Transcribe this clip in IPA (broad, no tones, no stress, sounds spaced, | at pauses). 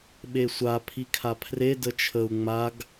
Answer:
ɓ e sʷ a pʰ i kʰ a pʰ r e d ə t͡ʃʰ ə u̯ ŋ͡m a ɡ